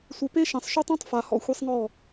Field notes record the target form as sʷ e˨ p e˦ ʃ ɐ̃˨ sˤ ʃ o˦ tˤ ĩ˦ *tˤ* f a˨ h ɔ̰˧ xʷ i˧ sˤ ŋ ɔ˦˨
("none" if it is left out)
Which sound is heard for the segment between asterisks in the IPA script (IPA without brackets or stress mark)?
tˤ